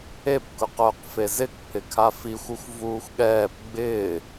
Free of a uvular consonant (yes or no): no